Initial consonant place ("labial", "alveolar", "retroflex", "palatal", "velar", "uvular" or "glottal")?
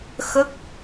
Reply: velar